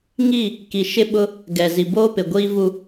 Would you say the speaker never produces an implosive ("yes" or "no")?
no